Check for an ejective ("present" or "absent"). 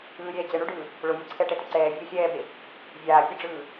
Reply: absent